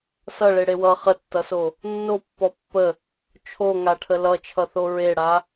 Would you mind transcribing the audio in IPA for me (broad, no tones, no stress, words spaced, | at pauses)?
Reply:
sʌɭeɽe wʌ χətːʌso | nːopːɔ pːə | t͡ʃʰoŋaʈʰə lʌt͡ʃʰʌθo ɹeɽa